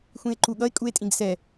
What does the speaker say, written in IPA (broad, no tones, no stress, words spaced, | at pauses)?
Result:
xʷĩe̯ǃuɠʌe̯ kʼue̯tʼĩɡsɛ